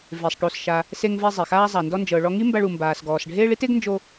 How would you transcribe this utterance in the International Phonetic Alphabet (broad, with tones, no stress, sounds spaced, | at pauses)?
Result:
v e˩ sˤ ʈ o˩ s ʃ a˩ | s e˧ ŋ v ɛ˧ zˤ e˩ x aː˥ zˤ a˩ n d ɔ˧ n d͡ʒ ɤ˩ ɭ ɔ˧ ŋ i˥ m b a˧ ɭ u˩ m b aː˩ s ɡ ɔː˩ s ɖʱ eː˥ ɭ i˥ t e˥ ɡ n d͡ʒ o˧